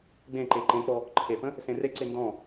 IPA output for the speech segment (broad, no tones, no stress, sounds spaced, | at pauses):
ɡ͡b ẽ ǃ e ǃ ẽ k͡p ɔ | ǃʰ e p ə̃ | s ẽ r e ǀ e n d ɔ̃